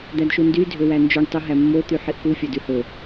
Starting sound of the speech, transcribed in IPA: d̪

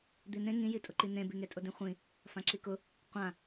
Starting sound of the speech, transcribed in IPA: d̪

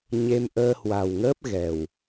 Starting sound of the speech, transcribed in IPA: ɲ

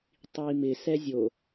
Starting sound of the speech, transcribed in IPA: tˤ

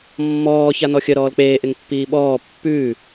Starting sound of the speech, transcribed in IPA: mː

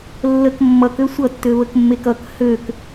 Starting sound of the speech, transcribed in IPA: lː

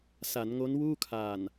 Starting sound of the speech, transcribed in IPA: s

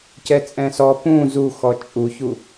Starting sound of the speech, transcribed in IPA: c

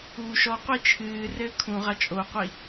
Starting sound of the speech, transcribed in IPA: uː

